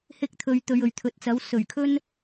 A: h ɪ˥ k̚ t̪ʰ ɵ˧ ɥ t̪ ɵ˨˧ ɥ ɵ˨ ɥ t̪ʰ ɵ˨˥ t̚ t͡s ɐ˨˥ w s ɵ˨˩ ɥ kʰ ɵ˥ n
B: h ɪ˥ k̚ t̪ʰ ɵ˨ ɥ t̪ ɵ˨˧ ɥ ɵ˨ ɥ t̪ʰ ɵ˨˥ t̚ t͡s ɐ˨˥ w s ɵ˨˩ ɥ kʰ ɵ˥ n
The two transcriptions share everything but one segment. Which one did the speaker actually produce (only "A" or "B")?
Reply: A